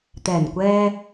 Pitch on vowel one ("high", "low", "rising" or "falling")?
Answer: low